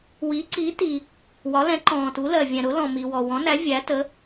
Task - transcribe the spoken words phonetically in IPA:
wi˨˥ǀi˨˥ti˨ | wɒ˨˥lɛ̃˨˥ǃɔ̃ː˨tu˨˥ lɜ˨vʲɛ̃˨ɾʊ˨˥ lɔ̃˨mi˨wɔ˨ wɔ̃˨˥næ˨˥ vʲæ˨˥tə˨˥

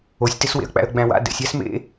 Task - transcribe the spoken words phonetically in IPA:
osʲteswḛə̯k͡pæ̰ə̯ ɡ͡bæ̃wa̰ dɛ̰sʲ æsmḛ

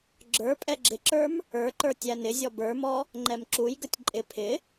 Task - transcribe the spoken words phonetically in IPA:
ɡ͡ǁə˞pʼɛ ɡ͡ǁɪǁə˞m | ə˞ǃə˞ tʲænɪzʲɔ bə˞mɔ | ŋ͡ǃɛmǁujɡətʲ ǃʼɪ pʰɪ

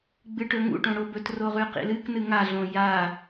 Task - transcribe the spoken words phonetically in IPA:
ɡ͡bɨʈɵŋṵʈõ ɽobɵtro ʁʉqḭlɨknɨ ŋaɮõ ja

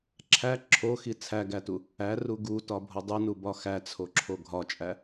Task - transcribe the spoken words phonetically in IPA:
ǁʰæ ǁʰoxi t͡sʰæɡætu | æru ɡutɒbʱo dˤunubɒ xæt͡sʰoǁʰo ɡʱɒt͡ʃʼæ

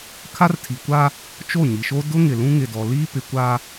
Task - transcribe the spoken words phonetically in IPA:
kʰa˦rtʰi˨kʷa˦ | t͡ʃo˦˨ɲi˨ʃo˦ dʊ˦ŋɪ˨ lũ˦ŋɪ˨dɔ˨ liː˦pɪ˨ kʷa˦

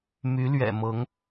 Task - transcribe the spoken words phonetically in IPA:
my˧˥lɥɛ̰˨˩mɤ˧˥ŋ

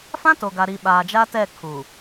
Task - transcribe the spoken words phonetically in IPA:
fã˦to˨ɡa˨ɾi˨ ɓaː˨d͡ʒa˦tɛ˦˨ kʰu˨

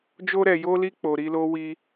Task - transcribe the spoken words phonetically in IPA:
d͡ʒo˧ɾɛ˨jo˧li˧ k͡po˨ɾi˧lo˦wi˧

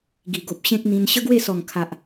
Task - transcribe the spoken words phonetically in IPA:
ɡi˨˩ɡo˨p̚ ɕẽ˦k̚n̪ĩ˧n ɕə˦ɡwe˥˧sɔ˨˩ŋ kʰa˨ʔ

